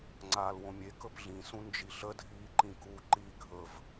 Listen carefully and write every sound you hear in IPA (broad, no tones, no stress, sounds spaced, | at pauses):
ŋ͡ǀ aː l w õ mʲ e k ɵ p ɮ ĩ s ũ n d͡ʒ i ɬ ə dʱ iː ǃ ĩ k u ǃ i ɡʱ ɵ v